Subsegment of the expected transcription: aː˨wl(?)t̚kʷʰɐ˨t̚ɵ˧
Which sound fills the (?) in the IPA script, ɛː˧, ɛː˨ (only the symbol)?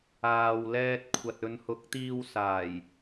ɛː˧